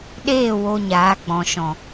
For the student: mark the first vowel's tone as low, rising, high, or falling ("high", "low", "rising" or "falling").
falling